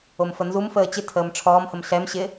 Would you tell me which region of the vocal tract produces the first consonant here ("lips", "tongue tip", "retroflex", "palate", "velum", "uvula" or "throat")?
lips